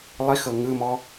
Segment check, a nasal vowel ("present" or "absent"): absent